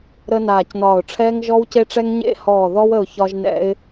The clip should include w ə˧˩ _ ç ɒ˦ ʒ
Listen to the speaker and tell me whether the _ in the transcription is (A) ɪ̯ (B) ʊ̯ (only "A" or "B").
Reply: B